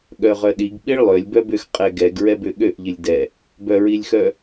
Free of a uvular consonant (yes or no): no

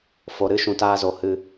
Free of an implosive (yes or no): yes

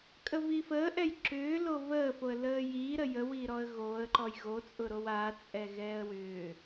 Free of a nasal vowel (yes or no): yes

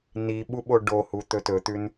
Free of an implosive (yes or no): no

